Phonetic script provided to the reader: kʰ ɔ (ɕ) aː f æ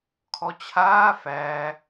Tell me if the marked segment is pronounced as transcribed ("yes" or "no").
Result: no